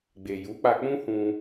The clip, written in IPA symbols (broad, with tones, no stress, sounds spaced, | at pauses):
ɡ͡b e˨ j u˨˦ k͡p a˧ k͡p ũ˦ h ũ˦